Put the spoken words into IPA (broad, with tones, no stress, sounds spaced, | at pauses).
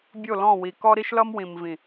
bʲ o˦˨ l ɔ̃˦˨ w i˨ k ɔ˦ ɾ i˦ ʃ l ʌ˦ m w ĩ˨ m v ĩ˨